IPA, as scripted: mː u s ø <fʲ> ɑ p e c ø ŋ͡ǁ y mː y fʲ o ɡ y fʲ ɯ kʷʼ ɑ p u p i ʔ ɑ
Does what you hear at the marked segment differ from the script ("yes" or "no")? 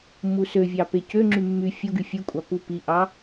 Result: yes